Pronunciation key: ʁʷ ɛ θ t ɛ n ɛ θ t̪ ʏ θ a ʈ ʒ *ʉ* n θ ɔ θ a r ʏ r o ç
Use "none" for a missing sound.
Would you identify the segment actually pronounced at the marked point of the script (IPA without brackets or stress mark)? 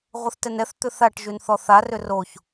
ʉ